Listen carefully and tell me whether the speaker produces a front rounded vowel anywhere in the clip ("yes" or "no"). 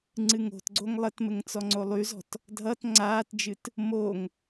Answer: yes